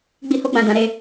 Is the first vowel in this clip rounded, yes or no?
no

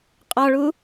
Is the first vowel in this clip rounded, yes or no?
yes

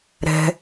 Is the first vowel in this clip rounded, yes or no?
no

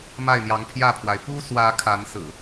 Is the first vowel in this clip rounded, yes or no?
no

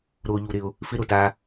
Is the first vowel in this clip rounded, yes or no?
yes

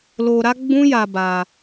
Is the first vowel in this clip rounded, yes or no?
yes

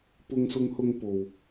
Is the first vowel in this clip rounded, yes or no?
yes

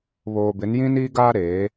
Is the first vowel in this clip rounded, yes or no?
yes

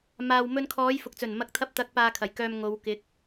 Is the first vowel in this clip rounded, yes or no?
no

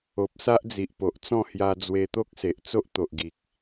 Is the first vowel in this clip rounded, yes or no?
yes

